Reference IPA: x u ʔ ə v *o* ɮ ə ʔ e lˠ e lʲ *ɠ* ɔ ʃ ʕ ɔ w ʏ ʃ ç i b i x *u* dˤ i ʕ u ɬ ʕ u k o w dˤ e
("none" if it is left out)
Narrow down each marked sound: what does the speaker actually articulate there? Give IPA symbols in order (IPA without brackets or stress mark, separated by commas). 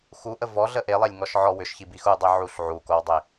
ɔ, ŋ, u